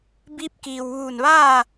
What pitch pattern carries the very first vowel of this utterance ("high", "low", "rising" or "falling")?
rising